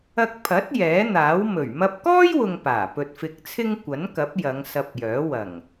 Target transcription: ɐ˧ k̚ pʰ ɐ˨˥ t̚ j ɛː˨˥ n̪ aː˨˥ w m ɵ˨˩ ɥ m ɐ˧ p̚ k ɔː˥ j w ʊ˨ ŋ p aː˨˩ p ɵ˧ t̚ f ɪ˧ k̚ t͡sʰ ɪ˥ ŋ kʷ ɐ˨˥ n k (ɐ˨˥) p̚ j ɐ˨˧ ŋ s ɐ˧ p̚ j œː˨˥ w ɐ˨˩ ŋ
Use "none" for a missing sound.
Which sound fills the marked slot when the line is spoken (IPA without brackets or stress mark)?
ɐ˨˥